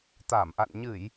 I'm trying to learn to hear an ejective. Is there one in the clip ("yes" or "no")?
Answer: no